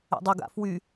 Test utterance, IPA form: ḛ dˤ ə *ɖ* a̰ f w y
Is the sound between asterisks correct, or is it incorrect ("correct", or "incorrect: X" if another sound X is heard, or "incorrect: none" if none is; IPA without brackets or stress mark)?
incorrect: ɡ